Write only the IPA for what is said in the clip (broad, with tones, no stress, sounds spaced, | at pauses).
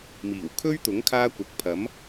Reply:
m iː˨˩ w kʰ ɵ˥ ɥ t̪ ʊ˨˥ ŋ kʰ aː˥ kʷ ɐ˨ k̚ pʰ ɐ˨˥ m